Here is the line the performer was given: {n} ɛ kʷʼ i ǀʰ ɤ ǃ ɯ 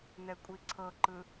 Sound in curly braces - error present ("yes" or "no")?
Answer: no